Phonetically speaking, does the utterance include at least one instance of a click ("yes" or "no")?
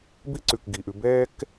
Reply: yes